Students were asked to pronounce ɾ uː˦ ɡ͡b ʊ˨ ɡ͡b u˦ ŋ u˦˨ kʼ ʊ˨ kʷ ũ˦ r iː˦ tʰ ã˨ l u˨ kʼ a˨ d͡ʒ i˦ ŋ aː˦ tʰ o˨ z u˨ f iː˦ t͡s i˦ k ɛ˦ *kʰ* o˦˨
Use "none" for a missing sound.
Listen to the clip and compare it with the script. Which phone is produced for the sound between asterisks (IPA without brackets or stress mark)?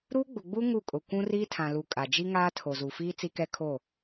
kʰ